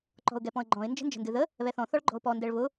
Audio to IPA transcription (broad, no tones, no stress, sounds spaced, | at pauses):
ǃ ɔ̤ ʊ̯ ɡ ɛ p ɔ̃ ə̯ ɡ͡ǃ ɔ̃ ɪ̯ n d͡ʒ ə̤ n d͡ʒ ə̤ n d ɨ ð ə | β ɛ θ ɔ̃ θ ɔ ɭ ɡ͡ǃ ɔ̤ ʊ̯ p ɔ n d ɛ ɭ β ʊ